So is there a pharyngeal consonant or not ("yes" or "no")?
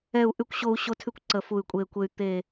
no